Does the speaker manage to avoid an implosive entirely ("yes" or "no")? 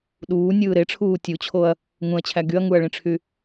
no